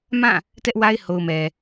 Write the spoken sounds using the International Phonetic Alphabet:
m ã˦˨ | t ɛ˦ ʔ w a˦ ɪ̯ h o˨ ʊ̯ m ɛ˨

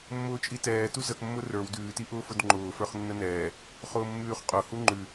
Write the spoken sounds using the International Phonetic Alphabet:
mː ʊː t͡ʃʼ i t ɛː t u z ə k mː ʊ r ə˞ w d ʉː t i ʔ ʊː f ʊ d ŋ͡ǃ ʊː f ə˞ χ nː ə n ɛː | χ ʊː mː ʉː χ qʼ ʊ h u ŋ͡ǃ ʉ

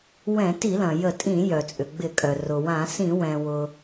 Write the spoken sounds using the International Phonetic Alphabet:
w ɛ̃˧˩˧ t i˧˩˧ l ɐ̃˩ j ə˧˩˧ tʼ ĩ˧˩˧ j œ˩ t͡sʼ ʏ˩ ɡ͡b ɪ˧˩˧ kʼ œ˩ r ʊ˩ w ã˧˩˧ s ĩ˧˩˧ w ɛ̃˩ w ʊ˩

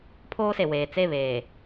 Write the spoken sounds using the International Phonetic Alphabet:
pʰ oː˦ s e˨ w eː˨ t͡s e˦˨ β eː˨

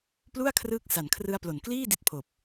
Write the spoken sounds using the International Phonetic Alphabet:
p l u˥˩ a̯ kʰ r ɯː˦˥ k̚ s a˨˩ n kʰ r ɯ˦˥ a̯ p l o˨˩ n k l iː˥˩ d i˦˥ t̚ pʰ oː˨˩ p̚

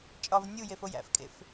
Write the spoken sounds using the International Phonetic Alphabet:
t͡ʃʼ ɒ v nʲ u j e f o j æ̰ f kʼ ḛ f

